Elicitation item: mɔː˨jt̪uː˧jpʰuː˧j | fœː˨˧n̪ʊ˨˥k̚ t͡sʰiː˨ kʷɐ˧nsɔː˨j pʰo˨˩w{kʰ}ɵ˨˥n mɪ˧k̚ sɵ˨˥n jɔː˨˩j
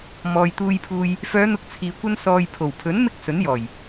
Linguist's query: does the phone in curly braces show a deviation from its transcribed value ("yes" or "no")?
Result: yes